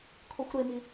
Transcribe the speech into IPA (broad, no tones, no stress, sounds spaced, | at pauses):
kʰ o xʷ ɾ e m i